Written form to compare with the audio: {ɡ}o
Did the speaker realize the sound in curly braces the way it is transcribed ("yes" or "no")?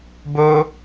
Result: no